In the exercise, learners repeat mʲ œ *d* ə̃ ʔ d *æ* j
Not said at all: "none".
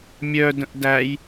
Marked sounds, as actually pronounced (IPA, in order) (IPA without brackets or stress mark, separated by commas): d, æ